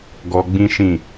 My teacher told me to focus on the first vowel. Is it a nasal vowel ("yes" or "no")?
no